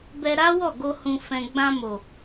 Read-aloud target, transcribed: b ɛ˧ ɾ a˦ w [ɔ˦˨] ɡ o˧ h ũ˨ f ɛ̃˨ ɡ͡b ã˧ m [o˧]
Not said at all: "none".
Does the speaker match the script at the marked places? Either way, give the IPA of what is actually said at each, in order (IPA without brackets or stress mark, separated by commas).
ɔ˦˨, o˨